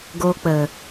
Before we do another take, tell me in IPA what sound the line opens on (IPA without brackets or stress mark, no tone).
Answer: ɡ